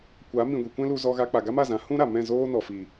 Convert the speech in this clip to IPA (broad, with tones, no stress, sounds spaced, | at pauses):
kʷ a˨˦ m ĩ˨ ɡʷ i˨ kʷ ɛ̃˦ l u˧ z ɔ˧ ɣ a˧ k͡p a˨ ɡ a˦ m a˦˨ z ã˨˦ h ũ˦ ɾ a˨ m ɛ̃˦˨ z oː˦ n ɔ˨ f i˨